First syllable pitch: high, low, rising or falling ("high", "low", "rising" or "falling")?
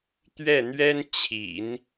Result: falling